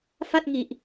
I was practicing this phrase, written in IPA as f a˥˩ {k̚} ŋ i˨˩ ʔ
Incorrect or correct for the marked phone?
incorrect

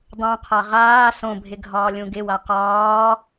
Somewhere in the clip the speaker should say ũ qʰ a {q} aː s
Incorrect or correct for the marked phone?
incorrect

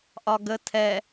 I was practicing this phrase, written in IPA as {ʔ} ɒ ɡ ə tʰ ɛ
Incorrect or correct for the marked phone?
correct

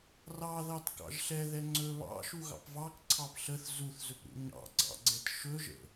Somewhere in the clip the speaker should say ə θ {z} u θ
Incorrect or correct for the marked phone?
correct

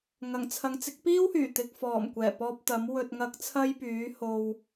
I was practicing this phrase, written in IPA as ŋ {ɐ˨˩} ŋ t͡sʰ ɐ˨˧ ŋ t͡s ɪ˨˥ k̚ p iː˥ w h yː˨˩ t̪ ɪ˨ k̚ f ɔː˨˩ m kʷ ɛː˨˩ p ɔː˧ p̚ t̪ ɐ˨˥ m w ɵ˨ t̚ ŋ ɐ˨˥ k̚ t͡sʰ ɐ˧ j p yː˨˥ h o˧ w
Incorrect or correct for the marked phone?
correct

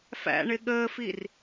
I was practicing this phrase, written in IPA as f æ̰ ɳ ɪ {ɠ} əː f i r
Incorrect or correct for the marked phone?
correct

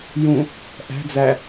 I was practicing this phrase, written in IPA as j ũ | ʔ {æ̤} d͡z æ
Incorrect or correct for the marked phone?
correct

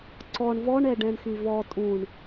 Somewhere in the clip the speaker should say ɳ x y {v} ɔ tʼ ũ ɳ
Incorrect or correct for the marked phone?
correct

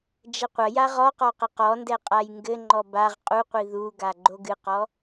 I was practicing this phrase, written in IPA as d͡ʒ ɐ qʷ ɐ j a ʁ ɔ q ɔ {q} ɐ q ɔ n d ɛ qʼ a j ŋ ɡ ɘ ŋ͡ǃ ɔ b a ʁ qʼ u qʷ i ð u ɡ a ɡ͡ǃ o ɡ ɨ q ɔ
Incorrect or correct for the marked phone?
correct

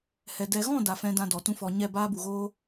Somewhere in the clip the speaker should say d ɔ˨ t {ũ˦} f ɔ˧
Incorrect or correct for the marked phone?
correct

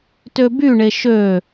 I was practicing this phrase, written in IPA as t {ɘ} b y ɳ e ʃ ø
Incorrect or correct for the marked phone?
incorrect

